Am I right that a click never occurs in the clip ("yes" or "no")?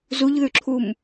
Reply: no